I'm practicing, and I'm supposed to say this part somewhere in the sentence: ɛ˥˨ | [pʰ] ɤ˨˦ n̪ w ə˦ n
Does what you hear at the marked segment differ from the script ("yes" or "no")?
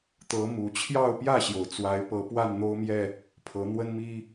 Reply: no